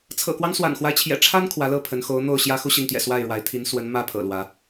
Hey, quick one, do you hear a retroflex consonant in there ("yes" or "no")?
yes